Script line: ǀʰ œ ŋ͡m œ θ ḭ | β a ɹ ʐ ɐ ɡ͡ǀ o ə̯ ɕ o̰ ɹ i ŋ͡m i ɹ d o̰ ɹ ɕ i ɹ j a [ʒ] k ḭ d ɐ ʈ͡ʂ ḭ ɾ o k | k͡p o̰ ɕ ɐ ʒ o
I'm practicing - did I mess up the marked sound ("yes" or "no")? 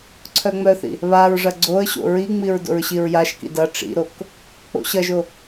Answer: yes